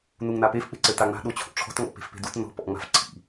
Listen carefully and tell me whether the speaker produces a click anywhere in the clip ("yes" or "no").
yes